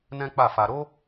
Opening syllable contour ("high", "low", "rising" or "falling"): high